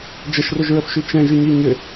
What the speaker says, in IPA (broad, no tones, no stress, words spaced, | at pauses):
d͡ʒəʃrʊʒɹəfʃy t͡ʃɛ̃ʒyɲi ɲʏ